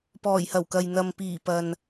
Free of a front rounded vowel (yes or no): yes